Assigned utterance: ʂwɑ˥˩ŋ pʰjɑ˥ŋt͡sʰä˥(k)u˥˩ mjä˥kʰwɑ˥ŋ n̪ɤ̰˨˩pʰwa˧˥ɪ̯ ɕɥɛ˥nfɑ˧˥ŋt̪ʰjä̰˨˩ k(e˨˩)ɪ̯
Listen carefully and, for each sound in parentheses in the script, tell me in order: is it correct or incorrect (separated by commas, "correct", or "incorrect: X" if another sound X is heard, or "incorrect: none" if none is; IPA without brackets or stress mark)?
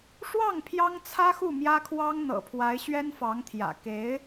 incorrect: x, incorrect: e˧˥